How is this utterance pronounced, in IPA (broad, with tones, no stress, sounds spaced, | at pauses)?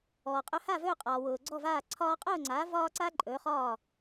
ɔː˩ qʼ ɵ˧ h a˥˩ v ɵː˥˩ qʼ ɒː˩ w ʊː˩ ɡ͡ǀ ɔ˥˩ v aː˥˩ ǀʰ ɒː˧ qʼ ʊː˥˩ ŋ͡ǀ a˩˥ v ɒː˥ ǀ a˥ ǃʼ ɵː˩˥ χ ɒː˥˩